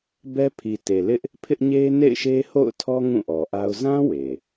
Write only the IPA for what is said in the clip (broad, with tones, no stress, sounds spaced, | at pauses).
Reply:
b ɛ˦ pʰ i˨ t e˨ l ɪ˦ ʔ | pʰ ɪ˦ ʔ ɲ e˦ n ḛ˦˨ ɪ̯ ʃ e˦ h o̰˦˨ ʊ̯ tʰ ɔ˦ ŋ ũ˦˨ ʔ ɔ˨ ʔ a˦ ʊ̯ z ã˦ w e˨